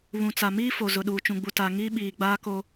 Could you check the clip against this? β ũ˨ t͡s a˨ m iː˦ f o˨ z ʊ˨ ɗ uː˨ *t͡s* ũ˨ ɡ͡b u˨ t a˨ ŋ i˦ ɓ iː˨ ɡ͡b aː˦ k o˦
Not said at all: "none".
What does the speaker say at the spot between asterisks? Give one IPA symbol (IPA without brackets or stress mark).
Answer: t͡ʃ